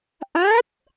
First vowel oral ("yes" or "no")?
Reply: yes